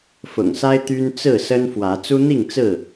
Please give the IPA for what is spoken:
fʊ̰˨˩ŋsa˦ɪ̯ t̪y˦n t͡sɹ̩˥˨sə˦nfwä˨˦ t͡su˦n̪i˥˨ŋ t͡sɹ̩˥˨

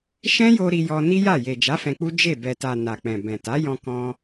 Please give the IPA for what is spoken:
ʃɛ̃˦jo˧ ɾi˧jɔ˧ ni˦ja˦˨ je˨d͡ʒa˨˦ fɛ̃˧k͡pu˦ d͡ʒe˦˨ bɛ˨ta˨ na˨k͡pɛ̃˨ bɛ̃˨ta˨˦jɔ̃˧ kɔ̃˧

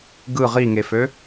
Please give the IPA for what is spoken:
ɡɯ ʁiŋefø

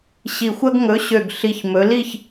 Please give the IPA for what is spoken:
ɕi˨˩xʷɐ˦ɡ ŋɵ˨˥ ɕø˨˩ɡ ɬi˨˩çmɵ˩˧li˥˨ç

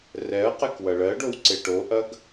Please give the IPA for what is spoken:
rɛɐ̯ qɛkwɐɭɜɖow ǀeʈoʔɐɡ

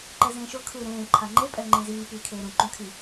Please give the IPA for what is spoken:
ǃɛzẽːʃo kʰɯːɾẽː ǃʰaŋ͡ǃe pʼɛŋ͡ǃĩziː piːkʰeːɾũ ǃũkʰi

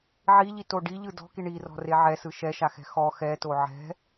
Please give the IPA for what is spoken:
ʕiʎito ɖiʎɯ dɔ̤ki ɳirɔ̤re ʕɛsɯ ʃɛʃaxɛ̤ xɔ xɛto ʕɛ̤

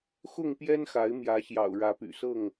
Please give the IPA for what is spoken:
xʊ˥˨ŋpjɛ˦nxa˨˦ɪ̯ mjä˨˦ɕjɑ̰˨˩ʊ̯ ɻä˨˦py̰˨˩sɤ˥˨ŋ

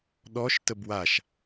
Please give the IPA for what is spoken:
ɗɔʃ təbwaʃ

